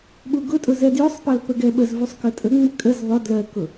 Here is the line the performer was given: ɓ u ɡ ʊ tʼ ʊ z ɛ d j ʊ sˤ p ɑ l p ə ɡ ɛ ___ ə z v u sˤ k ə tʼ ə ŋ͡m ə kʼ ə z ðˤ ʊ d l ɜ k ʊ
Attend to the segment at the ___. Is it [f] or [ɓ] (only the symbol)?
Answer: ɓ